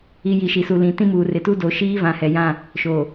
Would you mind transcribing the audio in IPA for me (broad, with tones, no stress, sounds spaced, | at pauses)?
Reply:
i˨ j i˨ ʃ i˨ s u˨ l ĩ˨ t ĩ˦ m uː˨ r ɪ˨ t u˦ d o˨ ʃ iː˦ v ã˨ h ɛ˨ j ã˦˨ | ʃ o˨